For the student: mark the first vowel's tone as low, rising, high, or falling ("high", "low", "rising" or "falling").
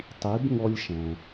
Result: rising